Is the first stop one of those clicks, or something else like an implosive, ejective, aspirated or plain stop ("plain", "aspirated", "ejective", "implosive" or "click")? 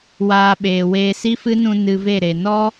implosive